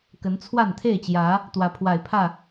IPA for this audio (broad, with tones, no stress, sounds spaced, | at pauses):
k ə˨˦ n t͡sʰ w a˥˨ n t̪ʰ e˥˨ ɪ̯ t͡ɕ j ä˨˦ | t̪ w ä˨˦ pʰ w a˨˩ ɪ̯ pʰ ä˥˨